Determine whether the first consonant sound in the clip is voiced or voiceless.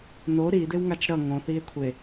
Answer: voiced